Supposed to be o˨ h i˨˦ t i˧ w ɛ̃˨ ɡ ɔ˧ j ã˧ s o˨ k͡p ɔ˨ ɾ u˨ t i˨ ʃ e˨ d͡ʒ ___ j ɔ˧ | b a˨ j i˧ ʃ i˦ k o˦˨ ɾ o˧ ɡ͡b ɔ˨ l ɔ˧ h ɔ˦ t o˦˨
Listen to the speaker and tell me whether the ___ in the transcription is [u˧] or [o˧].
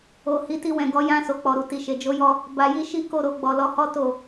o˧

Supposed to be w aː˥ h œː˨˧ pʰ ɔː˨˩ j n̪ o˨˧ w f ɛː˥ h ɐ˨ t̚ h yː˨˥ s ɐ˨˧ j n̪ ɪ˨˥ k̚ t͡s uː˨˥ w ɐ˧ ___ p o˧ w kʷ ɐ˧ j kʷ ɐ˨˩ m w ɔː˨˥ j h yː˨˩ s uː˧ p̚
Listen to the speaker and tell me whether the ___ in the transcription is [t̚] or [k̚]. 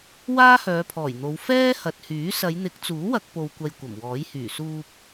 k̚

